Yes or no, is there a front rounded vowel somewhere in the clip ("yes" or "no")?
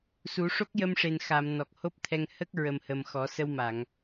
no